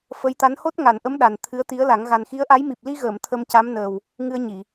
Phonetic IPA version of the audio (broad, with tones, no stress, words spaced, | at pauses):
fə˧˥jt̪a˧˥n ho˦˥t̚ŋa˨˩˨nʔə˧˥m ɗa˨˩nt̪ʰɨ˧˥ə̯t̪i˧˥ə̯la˨˩˦ŋ ɣa˨˩nxi˧˥ə̯ʔa˧˥j mi˨˩p̚li˧ɣəː˨˩˨m t̪ʰə˧mca˧˥mnəː˨˩w | ŋɨ˧ə̯ɲi˨˩˨